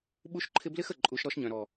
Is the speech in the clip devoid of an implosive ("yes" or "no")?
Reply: no